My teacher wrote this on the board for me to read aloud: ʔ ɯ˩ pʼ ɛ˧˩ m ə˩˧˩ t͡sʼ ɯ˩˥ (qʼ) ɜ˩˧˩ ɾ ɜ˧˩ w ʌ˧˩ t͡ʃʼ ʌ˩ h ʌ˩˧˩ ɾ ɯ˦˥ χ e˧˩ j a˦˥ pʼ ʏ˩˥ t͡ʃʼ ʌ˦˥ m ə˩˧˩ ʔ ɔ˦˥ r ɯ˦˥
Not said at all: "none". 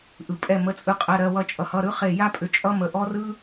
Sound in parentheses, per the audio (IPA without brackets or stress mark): qʼ